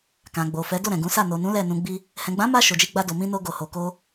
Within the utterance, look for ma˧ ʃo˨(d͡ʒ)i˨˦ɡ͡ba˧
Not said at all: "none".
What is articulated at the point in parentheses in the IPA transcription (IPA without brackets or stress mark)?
d͡ʒ